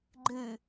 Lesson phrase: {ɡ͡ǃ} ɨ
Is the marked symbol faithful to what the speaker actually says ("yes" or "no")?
yes